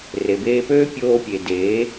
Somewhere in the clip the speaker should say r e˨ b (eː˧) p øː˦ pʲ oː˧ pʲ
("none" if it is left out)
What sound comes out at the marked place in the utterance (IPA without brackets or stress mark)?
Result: eː˧